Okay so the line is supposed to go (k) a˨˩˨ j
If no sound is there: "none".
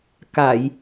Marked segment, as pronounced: k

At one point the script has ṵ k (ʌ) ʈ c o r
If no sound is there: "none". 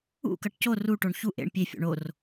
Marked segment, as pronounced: ʌ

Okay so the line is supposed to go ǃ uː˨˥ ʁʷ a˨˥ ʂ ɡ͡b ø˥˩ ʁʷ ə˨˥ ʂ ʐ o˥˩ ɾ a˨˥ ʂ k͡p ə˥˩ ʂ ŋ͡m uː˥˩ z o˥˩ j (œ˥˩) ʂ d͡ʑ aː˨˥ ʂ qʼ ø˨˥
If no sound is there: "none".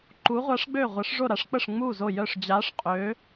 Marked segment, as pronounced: œ˥˩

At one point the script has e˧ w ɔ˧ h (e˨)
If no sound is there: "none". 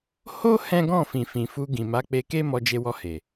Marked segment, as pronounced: e˨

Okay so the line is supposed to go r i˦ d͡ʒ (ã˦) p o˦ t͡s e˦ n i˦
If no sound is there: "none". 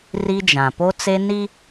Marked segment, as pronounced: ã˨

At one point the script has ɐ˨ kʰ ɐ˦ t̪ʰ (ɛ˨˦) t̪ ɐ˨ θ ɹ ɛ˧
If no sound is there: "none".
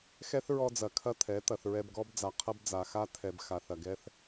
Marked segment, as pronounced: ɛ˨˦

